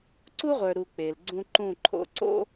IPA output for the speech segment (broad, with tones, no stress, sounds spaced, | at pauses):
ǀ u˦ ʁʷ ə˞˨ ɾ u˨ k͡p e˨ l ɡ͡ǀ ũ˦ ǃ ũ˦˨ ǃʰ o̰˦ ǀ o̰˦